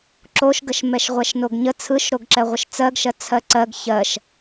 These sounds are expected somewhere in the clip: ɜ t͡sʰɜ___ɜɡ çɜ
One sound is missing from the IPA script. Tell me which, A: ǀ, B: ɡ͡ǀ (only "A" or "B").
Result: A